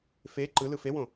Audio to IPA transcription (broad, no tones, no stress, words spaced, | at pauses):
fe ǃɯ lɯfewõ